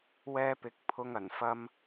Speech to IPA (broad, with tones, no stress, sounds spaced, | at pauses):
w ɛː˥ p ɪ˧ k̚ pʰ ʊ˧ ŋ ɐ˨˩ n f ɐ˧ m